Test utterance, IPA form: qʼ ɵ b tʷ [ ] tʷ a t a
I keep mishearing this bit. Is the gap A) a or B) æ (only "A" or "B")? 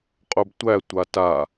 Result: B